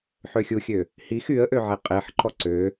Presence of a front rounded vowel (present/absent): present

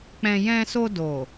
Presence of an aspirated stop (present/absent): absent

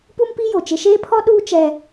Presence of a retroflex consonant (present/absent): absent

